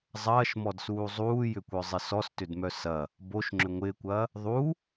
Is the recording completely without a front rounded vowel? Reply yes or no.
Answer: no